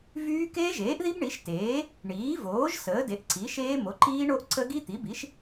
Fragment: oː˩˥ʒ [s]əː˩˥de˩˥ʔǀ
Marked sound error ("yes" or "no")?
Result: no